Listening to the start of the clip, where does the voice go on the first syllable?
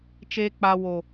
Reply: high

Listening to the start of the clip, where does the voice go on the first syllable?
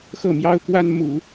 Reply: falling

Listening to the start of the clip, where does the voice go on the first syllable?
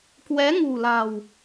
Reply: rising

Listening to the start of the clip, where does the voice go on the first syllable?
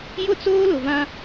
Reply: high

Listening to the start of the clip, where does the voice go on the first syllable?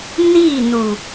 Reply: falling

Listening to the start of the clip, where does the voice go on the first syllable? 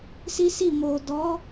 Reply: high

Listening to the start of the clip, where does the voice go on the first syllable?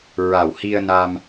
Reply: low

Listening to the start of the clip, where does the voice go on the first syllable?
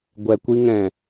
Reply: low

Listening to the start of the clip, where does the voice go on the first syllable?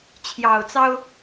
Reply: low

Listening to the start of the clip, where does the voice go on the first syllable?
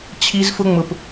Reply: high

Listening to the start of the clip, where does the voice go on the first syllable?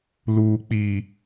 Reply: low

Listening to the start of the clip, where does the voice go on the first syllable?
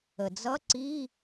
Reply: low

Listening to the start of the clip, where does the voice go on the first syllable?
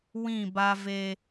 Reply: falling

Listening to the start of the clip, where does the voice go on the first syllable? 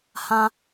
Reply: high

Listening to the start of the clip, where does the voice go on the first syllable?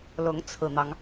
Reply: rising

